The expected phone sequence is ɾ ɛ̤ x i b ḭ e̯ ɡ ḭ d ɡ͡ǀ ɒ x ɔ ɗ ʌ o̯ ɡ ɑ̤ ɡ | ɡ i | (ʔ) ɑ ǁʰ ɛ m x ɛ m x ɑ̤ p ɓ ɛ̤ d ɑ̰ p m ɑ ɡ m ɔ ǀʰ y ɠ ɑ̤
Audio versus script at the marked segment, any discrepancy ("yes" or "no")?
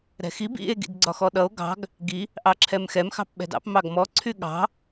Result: no